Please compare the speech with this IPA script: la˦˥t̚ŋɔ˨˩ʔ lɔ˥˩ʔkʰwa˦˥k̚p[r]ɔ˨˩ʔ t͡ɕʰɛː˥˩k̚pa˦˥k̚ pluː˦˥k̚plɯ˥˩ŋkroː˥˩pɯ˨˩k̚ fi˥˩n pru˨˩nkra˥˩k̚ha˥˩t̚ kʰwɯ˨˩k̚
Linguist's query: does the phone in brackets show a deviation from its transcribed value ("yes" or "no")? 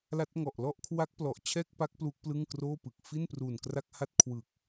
yes